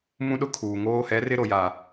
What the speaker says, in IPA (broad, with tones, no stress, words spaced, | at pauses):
mũ˦ɗʊ˦kʰuː˨ŋoː˦ hɛ˨˦rɪ˦ ɾo˨ja˨